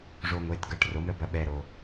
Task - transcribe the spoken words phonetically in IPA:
ʐo˧ ŋʷe˩˧tɡɐ˩˧˩ʈro˩˧m ɾə˩˧bɐ˩˧ɓɛ˩ ɾo˩

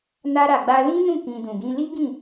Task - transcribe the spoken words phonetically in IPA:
na˧ɾa˨ɡ͡ba˧ lĩ˦nũ˦˨kĩ˨ dũ˨ɡĩ˧li˦ɡĩ˦˨

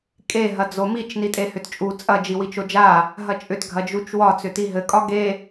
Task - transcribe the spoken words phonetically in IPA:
kʼe ɦɐd͡zomit͡ʃ nitʼehʏtt͡ʃʼu t͡sʼɐ d͡ʒiwit͡ʃod͡ʒa | ɦɐt͡ʃʼʏt ɡʱɐd͡ʒut͡ʃwɒ t͡sʏtiɦɘ kʼɒɡe

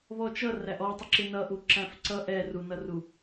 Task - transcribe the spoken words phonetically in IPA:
βɔt͡ʃʌ ræʔɔtˤəǁɪ nʌʔu ǁæ̃fǀʌ ʔɛ runʌru

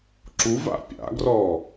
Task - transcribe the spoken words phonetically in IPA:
ǁuva̰ pʲa̰ɡrɔ

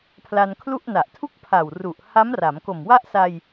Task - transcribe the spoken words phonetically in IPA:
pʰla˧nkʰlu˥˩ʔna˨˩ʔ tʰu˥˩k̚pʰa˨˩wru˨˩ʔ ha˦˥mra˩˦m ko˨˩mwa˥˩ʔ sa˧j

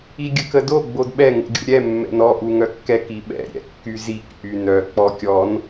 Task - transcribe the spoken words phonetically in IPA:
iɡʲəkədo ɡ͡bodɓɛ ŋṵɡʲṵɾʲɛ mːɛ̰nɔ ʔuŋœkːɛk iɓɛ̰ ɾʲɛ̰kːyzik ʔynœ k͡pɔkʲɔn

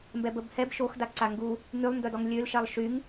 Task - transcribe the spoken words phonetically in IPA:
mbɛbəb hɛb ʃoxdaǀa ŋɡu | ŋylˠndœdɔŋ lʲølʃɛlˠ ʃyŋ

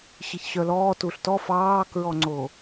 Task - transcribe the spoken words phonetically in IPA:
ɕiçɕœlɔː tuɬtɔ fɑːkɹɔŋ͡ǀo

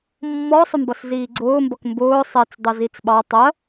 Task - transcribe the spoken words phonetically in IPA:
mːɔsˤʊmbʌs ziːɡ͡ǀʊːmbʌk mbʊː sˤɛt͡sdˤʌ zit͡sɓɑ tˤɜ

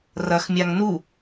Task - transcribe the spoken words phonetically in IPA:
rɐxmʲaŋ nu

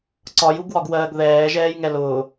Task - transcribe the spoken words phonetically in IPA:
ǀɒjuɡwɒɡwɜːɡ ðɛːʒɛːjŋɛ lʊː

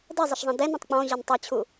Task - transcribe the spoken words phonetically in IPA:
dɛzˤəʃzˤɛ̃ dɛnõtˤ k͡pɔ̃ʑʌn tˤɛt͡ɕʰu

